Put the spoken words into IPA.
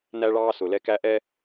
næ˦ɭɑː˦ sʊ˨lɛ˦kæ˦ʔɛ˦

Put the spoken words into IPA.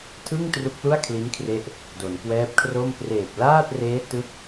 tʰɯ˥˩ŋ tru˦˥k̚lu˥˩a̯ kʰli˦˥nkʰre˦˥ʔ | do˩˦nkwɛː˦˥p̚kʰro˥˩m preː˨˩p̚laː˥˩t̚reː˦˥tɯ˦˥k̚

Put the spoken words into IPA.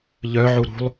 ʎœʕu ɾṳlˠ

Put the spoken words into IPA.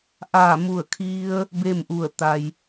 ʔaː˧˩mu˧˩ə̯kʰi˧ə̯ | beː˥˨mʔu˧˩ə̯ t̪a˩j

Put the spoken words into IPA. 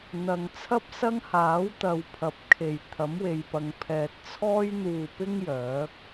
n̪ɐ˨ŋt͡sʰɐ˥p̚sɐ˥ŋhaː˨˥w t̪ɐ˨wpʰɐ˨˥p̚kʰe˨˩j t̪ʰɐ˨˥mwe˨jpɐ˨ŋpʰɛː˨t̚ t͡sʰɔː˥j n̪uː˨˩pɪ˧ŋ jœː˨˥k̚

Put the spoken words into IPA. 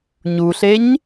ɲuɬeɲ

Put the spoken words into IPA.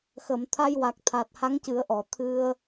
xə˨˩˨mt̪ʰa˧jwa˨˩k̚t̪ʰa˨˩t̚ ha˧˥ŋcɨ˨˩˦ə̯ʔɔ˨˩˨ t̪ʰɨ˧ə̯

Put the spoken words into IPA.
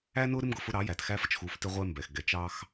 æ˦nʊ˦ ɾɪ˦mɡʊ˨fʊ˦ ɾɑ˨˦jæ˨txæ˦fə˦t͡ʃ xu˨˦ftɪ˦ʁʷɛ˦mbɛ˨x ɡɛ˨t͡ʃɑ˦x

